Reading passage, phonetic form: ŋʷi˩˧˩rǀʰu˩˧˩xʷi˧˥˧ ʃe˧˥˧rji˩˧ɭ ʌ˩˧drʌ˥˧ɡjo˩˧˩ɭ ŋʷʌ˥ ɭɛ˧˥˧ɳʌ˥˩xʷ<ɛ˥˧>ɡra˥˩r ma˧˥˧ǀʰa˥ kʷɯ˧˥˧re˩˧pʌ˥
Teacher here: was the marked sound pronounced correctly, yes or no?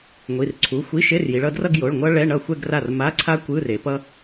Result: yes